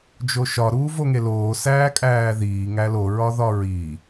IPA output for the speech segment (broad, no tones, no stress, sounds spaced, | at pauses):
d͡ʒ o ʃ ɒ ɾ uː v o ŋ e l oː s æː kʼ æː ð iː ŋ æ l o ɹ ɒ ð ɒ ɹ i